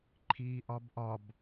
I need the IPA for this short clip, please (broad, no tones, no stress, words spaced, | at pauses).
ǃʰiːʔɒbʔɒb